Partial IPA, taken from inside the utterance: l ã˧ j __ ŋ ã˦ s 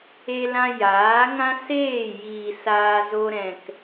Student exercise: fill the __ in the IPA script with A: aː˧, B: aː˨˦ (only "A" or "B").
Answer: B